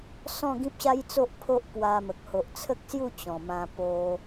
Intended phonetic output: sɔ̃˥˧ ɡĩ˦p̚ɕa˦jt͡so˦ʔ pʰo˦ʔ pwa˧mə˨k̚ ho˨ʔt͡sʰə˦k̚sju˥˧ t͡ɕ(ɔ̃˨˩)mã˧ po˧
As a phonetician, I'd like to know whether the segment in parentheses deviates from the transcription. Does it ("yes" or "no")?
no